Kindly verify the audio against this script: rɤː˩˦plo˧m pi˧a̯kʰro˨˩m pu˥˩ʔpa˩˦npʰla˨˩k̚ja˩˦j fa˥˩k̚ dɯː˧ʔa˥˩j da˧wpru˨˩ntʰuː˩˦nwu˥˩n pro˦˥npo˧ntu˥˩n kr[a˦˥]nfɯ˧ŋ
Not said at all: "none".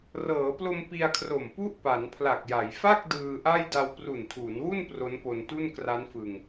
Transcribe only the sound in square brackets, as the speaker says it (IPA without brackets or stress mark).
a˦˥